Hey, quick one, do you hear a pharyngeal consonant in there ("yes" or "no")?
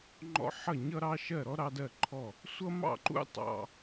yes